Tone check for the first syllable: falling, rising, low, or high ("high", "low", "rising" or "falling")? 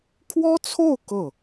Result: high